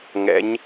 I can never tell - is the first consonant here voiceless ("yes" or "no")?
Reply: no